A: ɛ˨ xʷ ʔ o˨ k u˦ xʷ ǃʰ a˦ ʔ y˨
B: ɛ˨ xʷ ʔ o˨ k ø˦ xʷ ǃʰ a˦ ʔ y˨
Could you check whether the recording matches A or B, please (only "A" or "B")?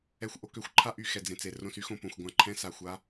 B